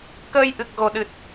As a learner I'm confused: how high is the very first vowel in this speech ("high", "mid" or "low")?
mid